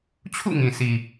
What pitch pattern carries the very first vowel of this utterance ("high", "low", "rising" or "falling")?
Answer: falling